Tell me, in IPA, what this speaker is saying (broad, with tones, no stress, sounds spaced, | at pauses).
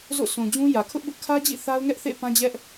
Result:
z o̰˦˨ s ũ˨ d͡ʑ ũ˦ j ä˨ kʰ ʊ˦ ʔ b ʊ˦ ʔ kʰ ä˦ d͡ʑ ḭ˦˨ θ a˦ ʊ̯ ŋ ɛ˦ ʔ θ ḛ˦˨ p ã˦ d͡ʑ ɛ˦ ʔ